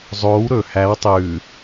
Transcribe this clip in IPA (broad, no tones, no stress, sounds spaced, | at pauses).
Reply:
zˤ oː w ɾ ɵ h æ w tˤ ʉː